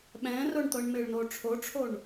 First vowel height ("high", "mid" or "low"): mid